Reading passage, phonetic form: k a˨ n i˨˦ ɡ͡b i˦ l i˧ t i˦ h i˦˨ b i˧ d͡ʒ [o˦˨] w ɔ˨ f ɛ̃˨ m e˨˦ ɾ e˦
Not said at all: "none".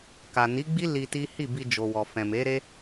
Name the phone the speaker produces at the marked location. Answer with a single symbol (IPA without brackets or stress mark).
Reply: o˨